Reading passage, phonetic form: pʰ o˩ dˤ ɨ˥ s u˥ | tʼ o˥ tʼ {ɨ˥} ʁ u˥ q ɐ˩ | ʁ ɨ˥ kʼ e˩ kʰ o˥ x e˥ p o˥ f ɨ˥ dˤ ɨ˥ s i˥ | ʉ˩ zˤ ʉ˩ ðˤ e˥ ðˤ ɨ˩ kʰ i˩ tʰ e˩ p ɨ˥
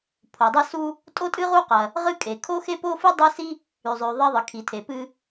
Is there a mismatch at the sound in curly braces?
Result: no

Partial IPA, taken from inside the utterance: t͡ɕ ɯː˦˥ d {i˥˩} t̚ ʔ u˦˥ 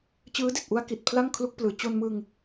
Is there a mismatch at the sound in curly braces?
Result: yes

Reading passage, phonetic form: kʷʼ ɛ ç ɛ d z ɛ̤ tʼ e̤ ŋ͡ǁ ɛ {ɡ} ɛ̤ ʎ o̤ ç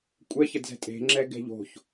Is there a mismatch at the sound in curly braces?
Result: no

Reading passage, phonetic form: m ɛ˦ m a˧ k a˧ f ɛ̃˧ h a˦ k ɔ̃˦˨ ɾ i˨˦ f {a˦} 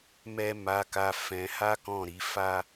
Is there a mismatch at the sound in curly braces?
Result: no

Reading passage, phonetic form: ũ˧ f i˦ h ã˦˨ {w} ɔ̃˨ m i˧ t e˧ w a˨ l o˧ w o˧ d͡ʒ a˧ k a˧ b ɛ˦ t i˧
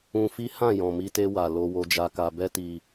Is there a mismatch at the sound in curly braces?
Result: yes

